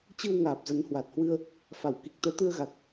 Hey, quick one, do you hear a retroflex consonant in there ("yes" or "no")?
no